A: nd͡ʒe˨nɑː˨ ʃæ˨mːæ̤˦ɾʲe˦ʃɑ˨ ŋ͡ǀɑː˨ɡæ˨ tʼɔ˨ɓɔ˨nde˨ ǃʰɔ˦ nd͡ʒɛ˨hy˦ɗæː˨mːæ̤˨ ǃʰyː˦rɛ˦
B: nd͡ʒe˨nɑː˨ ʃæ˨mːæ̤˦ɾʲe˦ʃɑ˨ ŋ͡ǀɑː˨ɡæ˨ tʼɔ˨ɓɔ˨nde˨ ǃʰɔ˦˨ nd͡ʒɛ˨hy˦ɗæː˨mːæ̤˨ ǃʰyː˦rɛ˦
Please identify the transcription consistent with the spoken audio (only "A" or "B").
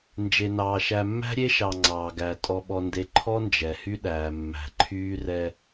A